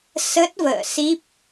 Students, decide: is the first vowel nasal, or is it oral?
oral